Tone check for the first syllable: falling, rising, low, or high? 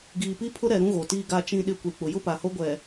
low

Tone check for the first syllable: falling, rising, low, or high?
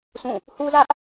falling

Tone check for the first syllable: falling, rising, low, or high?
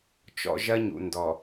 high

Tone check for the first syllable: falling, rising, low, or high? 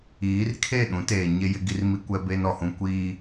rising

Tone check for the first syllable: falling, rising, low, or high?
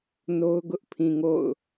high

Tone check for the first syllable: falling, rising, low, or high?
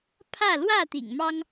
falling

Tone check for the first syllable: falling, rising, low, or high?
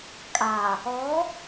low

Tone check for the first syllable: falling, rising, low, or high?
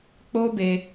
high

